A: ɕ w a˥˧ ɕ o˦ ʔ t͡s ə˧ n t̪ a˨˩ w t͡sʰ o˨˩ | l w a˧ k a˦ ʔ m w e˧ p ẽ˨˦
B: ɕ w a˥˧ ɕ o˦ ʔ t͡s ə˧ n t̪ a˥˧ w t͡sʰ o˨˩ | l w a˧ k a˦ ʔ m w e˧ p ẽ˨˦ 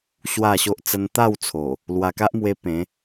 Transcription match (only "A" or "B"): B